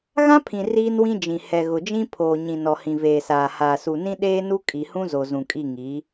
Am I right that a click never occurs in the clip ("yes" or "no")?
yes